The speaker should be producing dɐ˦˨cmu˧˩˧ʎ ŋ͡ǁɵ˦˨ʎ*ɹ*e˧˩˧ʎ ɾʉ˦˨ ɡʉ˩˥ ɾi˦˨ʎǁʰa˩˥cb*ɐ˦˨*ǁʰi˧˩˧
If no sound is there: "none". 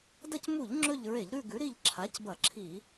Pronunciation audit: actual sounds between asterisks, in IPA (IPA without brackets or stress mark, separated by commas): ɹ, ɐ˧˩˧